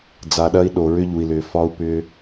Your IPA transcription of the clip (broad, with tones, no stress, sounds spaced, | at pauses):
d͡z a˨ ɗ ɐ˧ i̯ ɗ o˨ ɹ ʏ˧ ʎ u˨ i̯ l ʏː˨ f ɒ˧ u̯ p ʏ˧